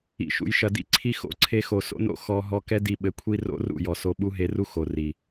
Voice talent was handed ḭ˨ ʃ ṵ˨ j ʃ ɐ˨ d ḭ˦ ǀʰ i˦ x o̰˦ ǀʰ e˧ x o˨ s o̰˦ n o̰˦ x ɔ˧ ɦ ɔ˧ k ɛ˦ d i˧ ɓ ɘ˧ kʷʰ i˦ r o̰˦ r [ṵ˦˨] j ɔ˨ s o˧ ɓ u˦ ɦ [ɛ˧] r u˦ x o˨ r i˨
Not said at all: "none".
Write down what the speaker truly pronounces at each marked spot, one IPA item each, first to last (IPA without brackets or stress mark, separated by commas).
ṵ˦˨, e˧